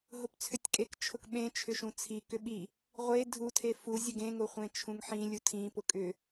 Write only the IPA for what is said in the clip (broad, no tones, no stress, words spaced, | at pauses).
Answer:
ɦʊpt͡sʰʏtʲkʼek t͡ʃʰʊkɓẽ t͡ʃʰʏʃũt͡sʰi kʏɓi | ʁʷe dʱu tʰefu zʲʊɡẽ ŋʊχʷẽt͡ʃʰũŋħĩ lʲutʰĩ pʊkʼʏ